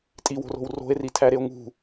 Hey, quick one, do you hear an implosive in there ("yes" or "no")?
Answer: no